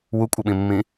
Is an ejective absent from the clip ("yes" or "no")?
no